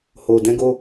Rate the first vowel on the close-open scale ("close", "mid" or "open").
mid